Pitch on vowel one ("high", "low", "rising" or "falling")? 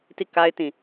falling